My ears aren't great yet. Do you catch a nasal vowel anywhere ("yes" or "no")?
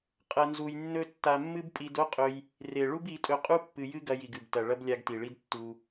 no